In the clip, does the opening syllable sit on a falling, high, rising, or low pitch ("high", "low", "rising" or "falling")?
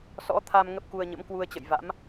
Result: rising